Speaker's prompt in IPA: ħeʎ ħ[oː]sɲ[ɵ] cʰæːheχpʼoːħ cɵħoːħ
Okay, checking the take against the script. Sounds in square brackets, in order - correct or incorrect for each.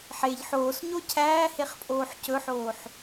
correct, incorrect: o

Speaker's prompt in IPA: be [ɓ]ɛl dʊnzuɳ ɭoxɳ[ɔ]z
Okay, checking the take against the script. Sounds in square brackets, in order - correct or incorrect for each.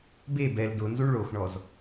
incorrect: b, correct

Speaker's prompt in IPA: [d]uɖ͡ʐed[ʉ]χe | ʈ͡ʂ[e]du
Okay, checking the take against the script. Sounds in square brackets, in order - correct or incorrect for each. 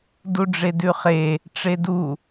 correct, correct, correct

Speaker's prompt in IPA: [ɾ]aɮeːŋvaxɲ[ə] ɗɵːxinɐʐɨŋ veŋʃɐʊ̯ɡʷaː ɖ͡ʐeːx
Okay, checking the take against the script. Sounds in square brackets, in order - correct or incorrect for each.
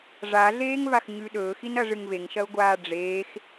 incorrect: ʐ, incorrect: ʉ

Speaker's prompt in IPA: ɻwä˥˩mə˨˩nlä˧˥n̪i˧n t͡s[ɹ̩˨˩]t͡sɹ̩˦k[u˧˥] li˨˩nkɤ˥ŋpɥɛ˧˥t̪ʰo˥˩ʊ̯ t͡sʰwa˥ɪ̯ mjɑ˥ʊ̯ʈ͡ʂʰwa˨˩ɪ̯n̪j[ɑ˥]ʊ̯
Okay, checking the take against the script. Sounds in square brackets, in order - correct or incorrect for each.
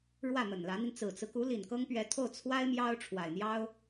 correct, correct, correct

